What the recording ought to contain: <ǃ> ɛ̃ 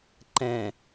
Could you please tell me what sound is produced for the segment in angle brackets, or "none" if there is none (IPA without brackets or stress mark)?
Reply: ǃ